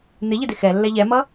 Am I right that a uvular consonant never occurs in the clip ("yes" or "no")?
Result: yes